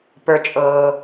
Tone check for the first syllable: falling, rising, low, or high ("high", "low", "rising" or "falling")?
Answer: high